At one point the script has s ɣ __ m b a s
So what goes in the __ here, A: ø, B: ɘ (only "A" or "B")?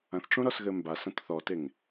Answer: B